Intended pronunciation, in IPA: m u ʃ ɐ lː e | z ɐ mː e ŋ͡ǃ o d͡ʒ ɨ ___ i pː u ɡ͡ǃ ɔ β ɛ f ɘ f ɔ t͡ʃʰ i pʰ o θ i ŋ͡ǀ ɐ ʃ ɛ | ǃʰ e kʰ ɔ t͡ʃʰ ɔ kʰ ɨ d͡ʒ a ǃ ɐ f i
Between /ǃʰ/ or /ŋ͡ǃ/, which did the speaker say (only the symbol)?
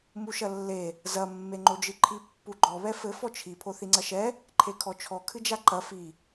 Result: ǃʰ